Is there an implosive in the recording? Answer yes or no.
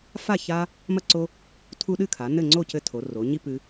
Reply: yes